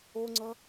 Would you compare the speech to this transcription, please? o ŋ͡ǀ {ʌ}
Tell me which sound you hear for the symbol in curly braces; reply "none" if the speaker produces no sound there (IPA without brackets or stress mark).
ʌ